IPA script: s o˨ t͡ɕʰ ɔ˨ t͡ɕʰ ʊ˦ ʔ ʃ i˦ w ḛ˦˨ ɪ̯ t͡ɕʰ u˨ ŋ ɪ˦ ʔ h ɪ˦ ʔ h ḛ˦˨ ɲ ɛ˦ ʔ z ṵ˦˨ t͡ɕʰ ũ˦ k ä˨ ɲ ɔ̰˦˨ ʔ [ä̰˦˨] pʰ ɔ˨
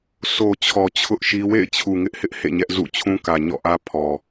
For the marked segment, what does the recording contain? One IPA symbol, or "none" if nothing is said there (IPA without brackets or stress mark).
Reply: ä˦